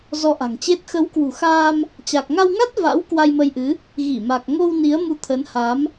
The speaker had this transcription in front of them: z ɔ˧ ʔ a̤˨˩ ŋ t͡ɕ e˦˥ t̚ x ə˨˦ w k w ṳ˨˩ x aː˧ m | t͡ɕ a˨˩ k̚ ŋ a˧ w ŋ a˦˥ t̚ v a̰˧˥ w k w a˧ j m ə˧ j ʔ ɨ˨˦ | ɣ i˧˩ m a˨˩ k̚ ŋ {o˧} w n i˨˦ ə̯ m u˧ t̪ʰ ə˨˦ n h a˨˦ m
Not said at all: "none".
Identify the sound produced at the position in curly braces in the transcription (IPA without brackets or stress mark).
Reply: o˧